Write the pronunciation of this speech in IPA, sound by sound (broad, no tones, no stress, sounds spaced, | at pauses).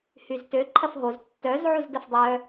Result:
h y z t ø ǃʰ ɐ f ɦ o z tː œ z ʕ u z d ɐ f dˤ œ